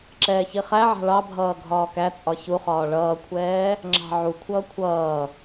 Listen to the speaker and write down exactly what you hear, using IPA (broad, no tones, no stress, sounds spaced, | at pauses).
ǁ ɛː ç i χ æ ʕ ɑ̤ ɭ ɑ bʱ ʌː ɡʱ ɒː k æ t͡sʼ ɒ ç u χ ɒː ɭ ʌː kʷʰ ɛː | ŋ͡ǁ ɑ̤ ʕ u kʷʰ ʌː kʷʰ ʌː